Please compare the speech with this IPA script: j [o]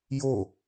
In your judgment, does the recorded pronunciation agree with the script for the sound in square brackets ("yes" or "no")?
yes